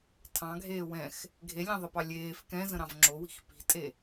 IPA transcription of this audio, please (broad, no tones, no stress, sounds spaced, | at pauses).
tʰ ɑ̃ ɡʱ eː w ɛ̃ x | ɡʱ e lʲ ɑ̃ ðˤ ə p ɑ lʲ eː f k ɛ̃ z ə̃ ɾ ɑ̃ v ŋ͡ǁ o w i̤ x p i̤ tʼ e